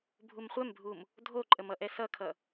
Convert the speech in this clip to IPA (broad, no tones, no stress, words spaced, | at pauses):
bʱumχʷɛmbʱum | dʱoǃʼəmʌʔɛ sʌkʰʌ